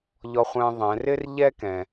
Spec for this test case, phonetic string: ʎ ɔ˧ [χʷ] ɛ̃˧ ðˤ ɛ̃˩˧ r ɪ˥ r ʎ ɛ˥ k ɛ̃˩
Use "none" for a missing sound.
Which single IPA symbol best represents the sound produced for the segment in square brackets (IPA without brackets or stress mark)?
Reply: χʷ